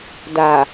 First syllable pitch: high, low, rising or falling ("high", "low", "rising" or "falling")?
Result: low